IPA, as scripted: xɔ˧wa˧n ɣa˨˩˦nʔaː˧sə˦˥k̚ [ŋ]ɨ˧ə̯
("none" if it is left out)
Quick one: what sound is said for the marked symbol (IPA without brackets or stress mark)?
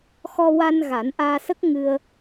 ŋ